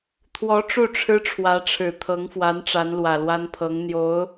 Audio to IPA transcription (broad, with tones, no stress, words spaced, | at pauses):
t̪ʰwɔ˧˥ ʈ͡ʂu˥˩ʈ͡ʂʰɻ̩˥ʈ͡ʂʰwä˧˥ʈ͡ʂʰɻ̩˨˩ t̪ʰɤ˧˥ŋfwa˧˥n ʈ͡ʂa˧˥nlwä˨˩lwa˥npʰɤ˧˥ŋ n̪jo˧˥ʊ̯